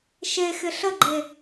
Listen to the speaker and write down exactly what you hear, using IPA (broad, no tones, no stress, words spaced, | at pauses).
ʃexɪ ɬəɡ͡ǃe